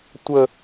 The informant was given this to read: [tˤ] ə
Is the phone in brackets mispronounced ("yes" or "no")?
yes